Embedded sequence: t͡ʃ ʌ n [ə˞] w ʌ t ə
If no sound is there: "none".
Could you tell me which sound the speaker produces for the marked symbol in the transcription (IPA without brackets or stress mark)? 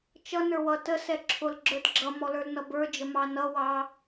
ə˞